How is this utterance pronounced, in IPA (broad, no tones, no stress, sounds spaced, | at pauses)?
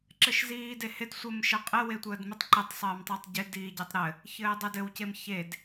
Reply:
ǁ ɘ ʃ z iː d e h ɪ d sʷ ɘ m ʃ ə qʼ ɪ w e tʷ əː d m ɪ tˤ ǃ ɪ tˤ sˤ ɘː m tˤ i tˤ ɟ ɪ d iː ɟ ɪ tˤ ɾ ɘ | ç ɘː dˤ ɪ d ɘ w c e m ç e d